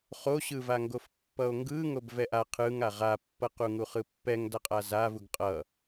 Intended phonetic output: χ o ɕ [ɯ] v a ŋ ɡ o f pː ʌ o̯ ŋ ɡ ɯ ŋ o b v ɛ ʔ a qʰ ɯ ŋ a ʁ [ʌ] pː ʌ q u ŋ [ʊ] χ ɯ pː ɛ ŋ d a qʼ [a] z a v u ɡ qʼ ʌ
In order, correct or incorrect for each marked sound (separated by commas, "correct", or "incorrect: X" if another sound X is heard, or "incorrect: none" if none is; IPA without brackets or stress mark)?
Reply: correct, incorrect: a, incorrect: u, correct